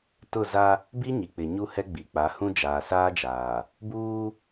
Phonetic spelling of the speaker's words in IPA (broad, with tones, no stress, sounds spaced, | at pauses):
t ʊ˦˨ z a˦ | b i˦ ɲ i˨ k͡p ɪ˨ ɲ u˦ h ɛ˦ ɡ͡b i˨ k͡p a˨˦ h ũ˦ d͡ʒ aː˨ s aː˦ d͡ʒ aː˨ | b uː˦